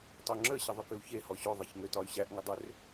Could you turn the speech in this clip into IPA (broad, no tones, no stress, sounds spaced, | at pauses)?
tˤ o ŋ͡ǁ ə ɕ ə ðˤ ʏ k ʏ u̯ ç e h ɔ ɕ o ðˤ e ç ŋ ø t ɒ y̯ ɕ æ ʔ ŋ ə dˤ ʏ r